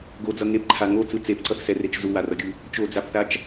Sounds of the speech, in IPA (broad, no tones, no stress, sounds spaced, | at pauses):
ɡ o d͡z ʌ ŋ e p ǃʰ a ŋ o t͡s ɯ t͡s e p ǀ ʌ θ s ɛ r e t͡ʃ z u w a r ʌ ɡʲ ɯ | t͡ʃ o d͡z a p θ a t͡ʃ